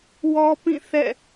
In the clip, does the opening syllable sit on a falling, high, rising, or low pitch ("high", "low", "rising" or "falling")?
high